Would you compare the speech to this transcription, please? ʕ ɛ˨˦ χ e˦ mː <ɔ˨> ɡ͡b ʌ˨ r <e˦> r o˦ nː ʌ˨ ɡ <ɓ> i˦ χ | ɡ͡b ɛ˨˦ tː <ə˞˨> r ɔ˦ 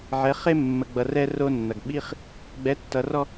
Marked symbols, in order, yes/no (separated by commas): no, no, yes, no